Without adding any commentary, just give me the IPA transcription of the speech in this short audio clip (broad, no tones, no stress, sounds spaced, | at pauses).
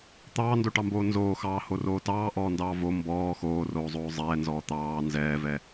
t̪ ɑː n d o ʈ ɑ m b oː n z oː x ɑː h o r oː t ɑː ʔ ɔː n d ɑː v o m b ɔː x oː r oː zˤ oː zˤ ɛː n z ɔː t̪ ɑː n z ɛː v ɛ